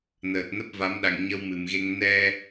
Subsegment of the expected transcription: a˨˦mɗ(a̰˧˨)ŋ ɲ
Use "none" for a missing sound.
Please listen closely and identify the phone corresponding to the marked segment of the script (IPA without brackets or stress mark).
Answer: a̰˧˨